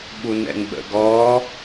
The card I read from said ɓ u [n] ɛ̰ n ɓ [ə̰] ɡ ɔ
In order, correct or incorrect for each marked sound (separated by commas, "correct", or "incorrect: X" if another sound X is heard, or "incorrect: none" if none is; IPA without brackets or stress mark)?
correct, correct